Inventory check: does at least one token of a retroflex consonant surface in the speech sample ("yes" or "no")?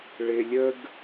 yes